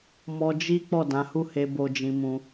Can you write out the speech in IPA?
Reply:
mɔ˧d͡ʒi˦ k͡pɔ˦˨dã˨˦hu˦˨he˧ bo˧d͡ʒĩ˧ mũ˧

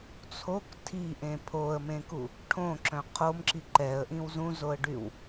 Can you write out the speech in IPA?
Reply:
t͡sʰok tʰiʔẽ pʰoə̯mẽku | ʈʰõǁœ̃ qʰomǁi ǃɛə̯ʔĩw zũzoə̯ɖyw

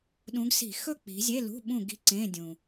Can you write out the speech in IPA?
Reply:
ɗũ˨˦ɡsi̤˧˩˧ xɵ˥˨ k͡pi̤˨˦zʲe˧˥˧lṳ˧˥˧ ɓũ˥˨ɡi̤˦˥ǀẽ˧˥˧dʲũ˨˩

